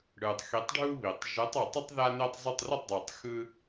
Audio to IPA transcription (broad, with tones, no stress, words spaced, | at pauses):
ɽɯ˨˩tˤxi˨˥tˤɖʱu˦ βi˨˩tˤ ʒɯ˨˥tˤ ɔ˨˩tˤʌ˦tˤ ða˦ne˦tˤzˤʊ˥˩tˤ rʊ˥˩tˤdˤɯ˨˩tˤ xɯ˦